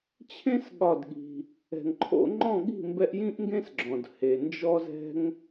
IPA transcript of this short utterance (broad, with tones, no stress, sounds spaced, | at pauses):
t͡ɕʰ ẽ˦ s ɠ ɒ˦˨ d ɠ i̤˧ | ɛ̤˨ ŋ ǃʰ o̰˧ ŋ͡ǃ ɔ̃˦˨ ɠ i̤˦˨ m b ɛ˧ ʔ j ĩ˦ ʔ ŋ ɡ ẽ˦ s ɡ͡ǁ ɔ̃˨ d h e˨ n d͡ʒ ɔ˦ z ɛ̤˦ ŋ